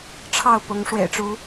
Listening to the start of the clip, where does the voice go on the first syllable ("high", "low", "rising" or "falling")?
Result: falling